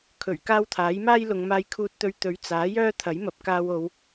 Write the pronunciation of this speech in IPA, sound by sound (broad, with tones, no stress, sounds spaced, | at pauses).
kʰ ɵ˨˩ ɥ k aː˥ w t̪ʰ aː˨˥ j m aː˥ j l ʊ˨˧ ŋ m aː˧ j kʰ uː˧ t̚ t̪ ɵ˧ ɥ t̪ ɵ˨˥ ɥ t͡s aː˨˥ j œː˥ t̪ʰ ɐ˨˥ j m ɐ˨ p̚ k aː˧ w o˨˧ w